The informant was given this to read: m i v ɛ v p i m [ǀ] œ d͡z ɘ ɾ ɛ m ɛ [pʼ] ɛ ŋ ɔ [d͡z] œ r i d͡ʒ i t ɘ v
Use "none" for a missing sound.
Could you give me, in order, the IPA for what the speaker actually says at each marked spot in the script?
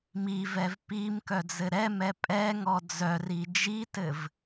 k, pʼ, d͡z

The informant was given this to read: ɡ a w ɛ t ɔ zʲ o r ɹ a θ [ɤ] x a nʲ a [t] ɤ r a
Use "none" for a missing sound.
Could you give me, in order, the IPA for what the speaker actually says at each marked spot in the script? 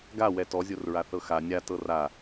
ɤ, t

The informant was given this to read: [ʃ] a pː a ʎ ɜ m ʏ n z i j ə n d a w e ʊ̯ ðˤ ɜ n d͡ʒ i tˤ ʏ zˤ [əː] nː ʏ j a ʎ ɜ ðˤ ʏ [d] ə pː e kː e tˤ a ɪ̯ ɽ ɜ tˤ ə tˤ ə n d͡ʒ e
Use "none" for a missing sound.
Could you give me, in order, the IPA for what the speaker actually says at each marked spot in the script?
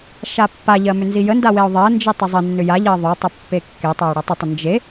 ʃ, ə, tˤ

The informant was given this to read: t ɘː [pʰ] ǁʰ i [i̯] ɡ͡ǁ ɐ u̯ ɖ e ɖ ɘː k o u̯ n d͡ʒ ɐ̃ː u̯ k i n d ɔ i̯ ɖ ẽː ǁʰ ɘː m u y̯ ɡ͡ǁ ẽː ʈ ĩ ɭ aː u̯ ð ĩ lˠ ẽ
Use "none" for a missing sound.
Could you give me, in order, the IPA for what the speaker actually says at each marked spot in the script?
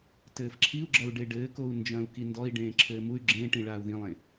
f, u̯

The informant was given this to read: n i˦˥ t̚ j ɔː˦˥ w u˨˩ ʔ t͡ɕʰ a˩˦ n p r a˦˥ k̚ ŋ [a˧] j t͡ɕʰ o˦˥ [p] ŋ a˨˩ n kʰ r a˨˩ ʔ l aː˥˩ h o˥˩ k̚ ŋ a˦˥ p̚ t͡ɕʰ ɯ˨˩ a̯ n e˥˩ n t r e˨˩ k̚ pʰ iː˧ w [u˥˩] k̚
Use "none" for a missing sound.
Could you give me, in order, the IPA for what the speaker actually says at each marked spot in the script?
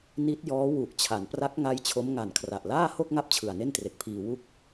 a˦˥, m, u˥˩

